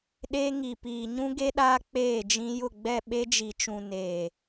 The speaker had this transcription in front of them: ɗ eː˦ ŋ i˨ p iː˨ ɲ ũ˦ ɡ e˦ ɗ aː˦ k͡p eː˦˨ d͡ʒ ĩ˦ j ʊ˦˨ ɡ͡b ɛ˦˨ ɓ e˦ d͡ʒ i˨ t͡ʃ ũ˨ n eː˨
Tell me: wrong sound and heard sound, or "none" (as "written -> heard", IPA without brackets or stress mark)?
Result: none